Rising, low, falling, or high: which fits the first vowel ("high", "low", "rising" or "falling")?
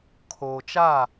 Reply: low